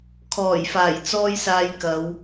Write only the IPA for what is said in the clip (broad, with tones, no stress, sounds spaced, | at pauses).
kʰ ɔː˨˩ j f aː˨˩ j t͡s ɔː˥ j s aː˧ j k ɐ˨˧ w